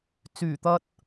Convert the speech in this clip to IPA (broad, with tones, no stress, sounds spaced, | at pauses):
t͡s yː˨˩ t̪ ɐ˧ t̚